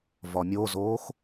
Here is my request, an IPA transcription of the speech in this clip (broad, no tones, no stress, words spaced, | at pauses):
vɒmʲozoːx